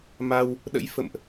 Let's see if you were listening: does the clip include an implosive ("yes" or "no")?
yes